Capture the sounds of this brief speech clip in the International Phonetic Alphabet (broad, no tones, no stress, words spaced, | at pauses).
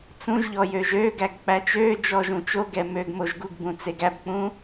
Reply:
t͡sũʒʎɔ jøːʒøːɡæɡ k͡pæt͡ʃøːd͡ʒɔːʒ ũt͡ʃoɡɛ møːɡmoʒɡuɡbũ t͡seɡæbk͡pũ